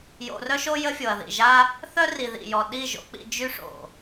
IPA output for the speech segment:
j o̰˧ r œ˦ ʃ o˦ j ə˦ fʲ o˨ ɐ̯ ð ḭ˨ ʒ a˦ | θ œ˦ r i˨ ð ḭ˨ j ɔ˨ ɗ i˦˨ ʒ o̰˧ k͡p ḭ˧ d͡ʒ y˦ ʂ o̰˨

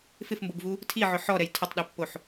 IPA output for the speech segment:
f ɪ f m b o b v u | tʰ i ʕ ʊ ħ ɔ ɾ ɛ j tʰ ʊ tˤ ɗ ɛ pː o ħ

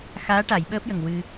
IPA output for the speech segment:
x aː˧˥ ʈ a˨˩˨ j ɓ əː˦˥ p̚ j ə˨˩ ŋ w ɨ˧

